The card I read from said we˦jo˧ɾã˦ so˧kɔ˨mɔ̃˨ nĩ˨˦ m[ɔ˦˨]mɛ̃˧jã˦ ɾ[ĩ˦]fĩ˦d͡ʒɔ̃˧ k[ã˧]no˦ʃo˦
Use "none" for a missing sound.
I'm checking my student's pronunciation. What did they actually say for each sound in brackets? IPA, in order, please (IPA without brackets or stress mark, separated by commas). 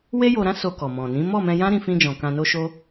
ɔ˦˨, ĩ˦, ã˧